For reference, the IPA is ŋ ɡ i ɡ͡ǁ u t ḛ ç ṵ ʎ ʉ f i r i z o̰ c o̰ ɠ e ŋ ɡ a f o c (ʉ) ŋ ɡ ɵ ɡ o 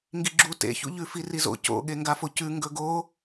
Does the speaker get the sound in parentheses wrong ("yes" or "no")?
no